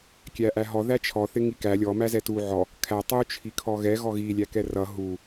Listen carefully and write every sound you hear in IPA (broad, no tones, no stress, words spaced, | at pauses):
kʲæʔæɦɔ ðæt͡ʃʰɔ θɪŋikæ lʲɔ mæzɛtu ʕɔ | kʰæ tˤu t͡ʃʰikʰɔɣɛ ɣɔɣi lʲækɛrʌ ɦu